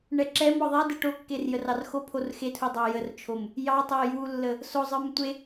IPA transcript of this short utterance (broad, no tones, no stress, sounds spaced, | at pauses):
ɳ ɛ ǁ ɛ m ɔ ðˤ e d ɛ ʈ o kː e r j ə r ɑ r x o pʰ o r x e tʰ u dˤ ɑ j ə r t͡ʃʰ o m | j ɑ tˤ o j u lː ə | s o zˤ ə˞ m tʷ e